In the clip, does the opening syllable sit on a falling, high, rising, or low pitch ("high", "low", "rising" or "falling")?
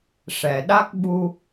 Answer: low